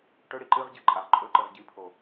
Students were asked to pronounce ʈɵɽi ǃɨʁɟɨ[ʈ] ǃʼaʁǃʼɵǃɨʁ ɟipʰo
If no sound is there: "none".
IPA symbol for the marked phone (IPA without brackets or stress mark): none